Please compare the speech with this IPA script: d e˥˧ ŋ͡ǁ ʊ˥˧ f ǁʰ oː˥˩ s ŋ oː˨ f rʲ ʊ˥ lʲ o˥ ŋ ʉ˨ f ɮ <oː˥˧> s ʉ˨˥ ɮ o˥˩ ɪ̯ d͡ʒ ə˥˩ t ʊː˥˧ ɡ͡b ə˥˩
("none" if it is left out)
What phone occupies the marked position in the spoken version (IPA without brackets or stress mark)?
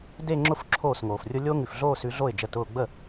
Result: oː˥˧